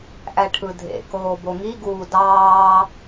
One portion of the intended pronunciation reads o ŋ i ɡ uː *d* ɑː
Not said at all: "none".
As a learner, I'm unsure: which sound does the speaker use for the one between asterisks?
d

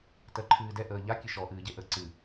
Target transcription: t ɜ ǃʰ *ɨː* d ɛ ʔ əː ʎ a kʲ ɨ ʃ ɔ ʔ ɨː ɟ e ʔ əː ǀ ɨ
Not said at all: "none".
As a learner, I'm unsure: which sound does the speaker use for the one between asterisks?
ɨː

